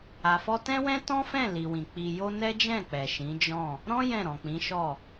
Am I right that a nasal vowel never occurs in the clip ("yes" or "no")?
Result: no